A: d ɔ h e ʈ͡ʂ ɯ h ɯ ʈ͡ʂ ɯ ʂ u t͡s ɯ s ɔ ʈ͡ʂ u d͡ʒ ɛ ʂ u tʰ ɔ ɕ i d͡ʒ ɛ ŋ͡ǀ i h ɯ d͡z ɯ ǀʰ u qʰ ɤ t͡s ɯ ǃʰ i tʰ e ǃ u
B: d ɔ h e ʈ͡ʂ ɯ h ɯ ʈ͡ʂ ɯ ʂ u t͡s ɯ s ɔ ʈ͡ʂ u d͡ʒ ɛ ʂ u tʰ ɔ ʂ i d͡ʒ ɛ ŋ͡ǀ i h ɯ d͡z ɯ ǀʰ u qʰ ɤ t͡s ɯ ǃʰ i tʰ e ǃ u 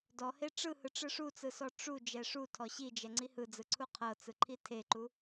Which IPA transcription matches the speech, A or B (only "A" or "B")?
A